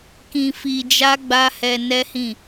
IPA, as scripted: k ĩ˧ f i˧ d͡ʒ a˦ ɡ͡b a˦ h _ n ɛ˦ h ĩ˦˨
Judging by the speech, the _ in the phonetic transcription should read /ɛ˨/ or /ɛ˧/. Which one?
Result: ɛ˧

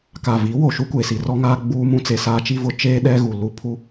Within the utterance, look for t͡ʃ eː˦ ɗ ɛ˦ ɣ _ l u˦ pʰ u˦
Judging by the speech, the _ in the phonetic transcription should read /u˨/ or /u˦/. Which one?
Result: u˨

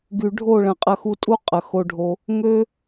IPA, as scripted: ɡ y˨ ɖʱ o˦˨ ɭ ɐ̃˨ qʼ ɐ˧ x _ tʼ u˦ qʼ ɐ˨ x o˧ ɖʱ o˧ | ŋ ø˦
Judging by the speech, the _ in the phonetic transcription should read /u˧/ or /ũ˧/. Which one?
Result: u˧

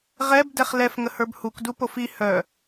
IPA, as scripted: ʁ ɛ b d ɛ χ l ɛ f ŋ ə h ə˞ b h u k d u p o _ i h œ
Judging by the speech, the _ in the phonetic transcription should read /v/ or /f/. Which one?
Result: f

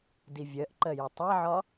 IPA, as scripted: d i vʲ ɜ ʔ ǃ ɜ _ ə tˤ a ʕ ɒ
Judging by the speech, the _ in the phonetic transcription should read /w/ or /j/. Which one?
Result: j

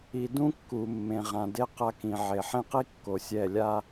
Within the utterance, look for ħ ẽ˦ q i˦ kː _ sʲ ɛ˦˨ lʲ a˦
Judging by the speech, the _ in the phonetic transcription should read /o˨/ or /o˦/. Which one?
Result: o˨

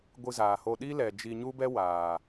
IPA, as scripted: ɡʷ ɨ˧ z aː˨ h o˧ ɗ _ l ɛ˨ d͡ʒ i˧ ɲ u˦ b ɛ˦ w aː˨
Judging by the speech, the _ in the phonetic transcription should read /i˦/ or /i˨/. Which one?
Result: i˦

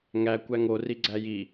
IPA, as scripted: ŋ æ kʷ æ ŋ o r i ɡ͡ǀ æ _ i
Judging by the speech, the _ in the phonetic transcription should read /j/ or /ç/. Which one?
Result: j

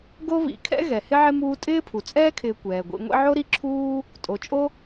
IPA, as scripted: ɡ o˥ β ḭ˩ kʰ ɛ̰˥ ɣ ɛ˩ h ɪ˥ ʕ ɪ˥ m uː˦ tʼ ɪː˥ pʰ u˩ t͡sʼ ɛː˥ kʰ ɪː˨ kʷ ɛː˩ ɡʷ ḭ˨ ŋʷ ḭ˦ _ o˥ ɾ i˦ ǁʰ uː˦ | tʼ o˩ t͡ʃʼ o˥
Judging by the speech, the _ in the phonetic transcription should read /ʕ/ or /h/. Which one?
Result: ʕ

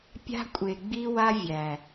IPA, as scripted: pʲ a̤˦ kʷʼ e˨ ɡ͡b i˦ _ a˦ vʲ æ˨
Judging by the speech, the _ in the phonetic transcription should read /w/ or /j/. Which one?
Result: w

